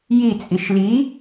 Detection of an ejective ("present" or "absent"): present